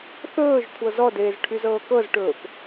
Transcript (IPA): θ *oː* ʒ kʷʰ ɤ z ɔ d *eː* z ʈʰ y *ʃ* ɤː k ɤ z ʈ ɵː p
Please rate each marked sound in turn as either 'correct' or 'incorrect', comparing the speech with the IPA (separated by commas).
incorrect, correct, incorrect